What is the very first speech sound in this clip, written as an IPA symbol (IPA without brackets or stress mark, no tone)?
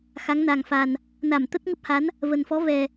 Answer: x